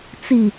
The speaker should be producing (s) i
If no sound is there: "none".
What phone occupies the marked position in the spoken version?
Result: t͡s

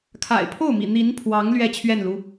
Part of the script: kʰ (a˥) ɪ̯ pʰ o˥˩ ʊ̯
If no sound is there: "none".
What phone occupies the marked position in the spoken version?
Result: a̰˨˩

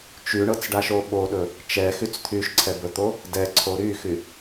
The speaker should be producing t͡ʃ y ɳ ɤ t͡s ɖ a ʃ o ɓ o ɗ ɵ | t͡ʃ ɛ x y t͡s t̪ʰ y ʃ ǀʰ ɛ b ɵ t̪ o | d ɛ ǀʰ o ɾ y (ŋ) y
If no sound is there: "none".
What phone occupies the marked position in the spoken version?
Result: x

